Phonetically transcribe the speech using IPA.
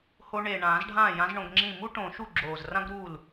ho˧ɳe˨˩ɳãː˨˩˦zɖʱãː˥˩ jã˧˥zɳõ˧ɡŋ͡ǁĩ˥˩ mu˥ʈõ˨˩˦ ʃu˥˩ɡ͡ǁoː˨˩z rã˥ɡɾu˥˩l

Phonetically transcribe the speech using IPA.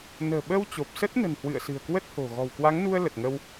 nə̤ː˨˩ɓə˧w t͡ɕo˨˩p̚sə˦˥t̚nə̤˨˩nhwɨ̰˧˨ə̯ sɨ̤˨˩ə̯kwə˦˥t̚ho̤˨˩ ɣɔ̤˨˩wkwa˨˦ŋnu˧ə̯ lə˨˩t̚ŋə˧w

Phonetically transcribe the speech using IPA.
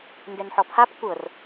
ndɛnħɔpʰap kʷɤr

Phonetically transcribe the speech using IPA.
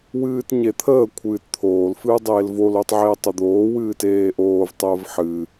wɨːtɲet̪ʰəː kʷʰɨːtt̪ʰoːl fɨːdˤeːlvol otˤʕeːtˤəd̪oː wɨːteːʔoːv tˤəːvħɨ

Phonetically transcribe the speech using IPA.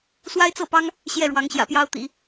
swa˥ɪ̯t͡sɤ˥˩pɑ˥ŋ | ɕjɛ˥˩ɻwɑ˧˥ŋ ɕjä̰˨˩pjɑ˥ʊ̯t̪ḭ˨˩˦

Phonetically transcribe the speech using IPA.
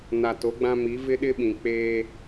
na˨to˨˦ɡ͡bã˦mi˨˦ vɪ˦ɗɪ˦ɓĩ˨ k͡peː˦

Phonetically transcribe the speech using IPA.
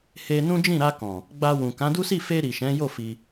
he˧nũ˦d͡ʒĩ˦˨ ɾa˧kɔ̃˨ | ɡ͡ba˧wũ˨ kã˨˦du˦si˦˨ fe˧ ɾi˨ʃɛ̃˨˦jo˦˨ fi˧

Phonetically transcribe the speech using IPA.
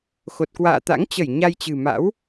xo˨˩t̚kwa̰ː˧˨t̪a̰˧˥ŋt͡ɕə˧˩j ɲa˧jt͡ɕɨ̤˨˩ma̰˧˥w

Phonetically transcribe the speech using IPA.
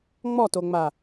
ŋ͡mɔtoŋ͡ma

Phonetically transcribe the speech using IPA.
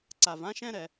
ǀa˩vã˥ʃɛ̃˥ɾɛ˩

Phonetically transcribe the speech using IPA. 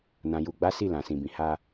nã˨ju˨ɡ͡ba˨˦ si˦˨lã˨sĩ˨bĩ˨ ha˧

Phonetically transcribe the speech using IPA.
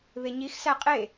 βeɲixsæ qʼe

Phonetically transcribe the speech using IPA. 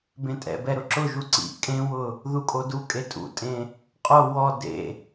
bẽtʼɛ̰bɛ ɾʊǁʊʒu ǀḭ kʼẽwʊ | ðukʼodukʼe tʼṵtʼẽ | qʼo wɔ dḛ

